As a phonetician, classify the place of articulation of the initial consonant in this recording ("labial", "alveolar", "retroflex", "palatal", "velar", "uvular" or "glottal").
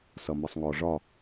alveolar